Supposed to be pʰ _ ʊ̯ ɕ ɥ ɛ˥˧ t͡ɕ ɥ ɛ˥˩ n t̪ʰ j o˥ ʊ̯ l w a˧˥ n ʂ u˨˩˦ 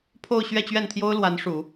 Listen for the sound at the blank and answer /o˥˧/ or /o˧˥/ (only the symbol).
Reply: o˥˧